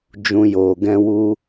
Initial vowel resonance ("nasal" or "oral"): nasal